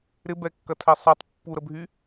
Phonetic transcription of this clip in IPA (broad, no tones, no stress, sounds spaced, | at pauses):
ɾ ɪ b ɛ kː ɐ tʰ ɛ sˤ ɛ tˤ pː u ɾ ə bʱ y